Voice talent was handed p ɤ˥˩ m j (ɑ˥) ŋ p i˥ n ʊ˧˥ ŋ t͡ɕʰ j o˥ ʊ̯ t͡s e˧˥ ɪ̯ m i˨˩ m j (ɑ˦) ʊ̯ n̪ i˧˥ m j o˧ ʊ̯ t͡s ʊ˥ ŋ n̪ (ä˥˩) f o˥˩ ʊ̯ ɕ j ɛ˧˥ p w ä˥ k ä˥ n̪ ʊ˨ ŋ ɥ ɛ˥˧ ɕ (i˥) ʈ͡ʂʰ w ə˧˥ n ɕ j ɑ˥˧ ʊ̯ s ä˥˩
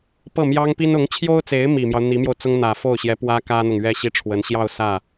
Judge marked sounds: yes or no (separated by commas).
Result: yes, yes, no, no